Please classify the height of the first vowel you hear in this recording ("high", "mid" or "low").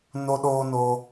mid